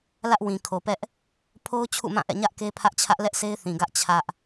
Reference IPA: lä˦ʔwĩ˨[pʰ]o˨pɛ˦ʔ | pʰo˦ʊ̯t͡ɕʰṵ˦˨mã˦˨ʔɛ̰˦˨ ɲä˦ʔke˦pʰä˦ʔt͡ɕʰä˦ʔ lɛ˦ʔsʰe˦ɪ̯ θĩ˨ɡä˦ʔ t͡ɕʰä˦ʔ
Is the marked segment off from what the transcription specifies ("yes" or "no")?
yes